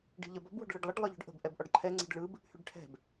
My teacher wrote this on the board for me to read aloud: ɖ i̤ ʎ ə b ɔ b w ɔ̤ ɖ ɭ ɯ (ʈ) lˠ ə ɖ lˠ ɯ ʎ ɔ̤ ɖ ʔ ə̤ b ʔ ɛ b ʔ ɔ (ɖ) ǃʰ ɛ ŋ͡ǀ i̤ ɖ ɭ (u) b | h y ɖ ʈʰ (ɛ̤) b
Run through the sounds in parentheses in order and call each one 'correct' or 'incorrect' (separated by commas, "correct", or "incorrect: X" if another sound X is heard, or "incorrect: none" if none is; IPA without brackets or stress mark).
incorrect: ɖ, correct, incorrect: ɯ, correct